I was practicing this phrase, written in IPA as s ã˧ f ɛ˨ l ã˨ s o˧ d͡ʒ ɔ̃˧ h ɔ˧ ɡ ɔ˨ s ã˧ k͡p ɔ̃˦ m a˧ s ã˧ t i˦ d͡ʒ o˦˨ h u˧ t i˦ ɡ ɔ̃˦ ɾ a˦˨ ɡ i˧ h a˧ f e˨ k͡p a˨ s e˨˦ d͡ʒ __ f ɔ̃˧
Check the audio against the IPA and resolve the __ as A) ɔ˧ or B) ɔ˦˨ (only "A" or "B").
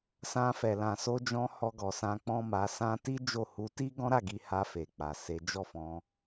B